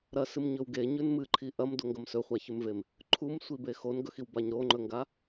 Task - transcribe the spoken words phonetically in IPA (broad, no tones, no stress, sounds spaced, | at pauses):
ɾ ɐ s ɨ m ɲ ɵ w ɡ e ɲ ʉ n m ɨ ǃʰ i ʔ ɐ m d o ŋ ɡ ɐ m s ɵ χʷ a ç ʉ m v e m | ǃʰ u m sʷ i b e x o n ɡ ɵ x i w b a ɲ ɾ o ŋ͡ǃ ɵ ŋ ɡ a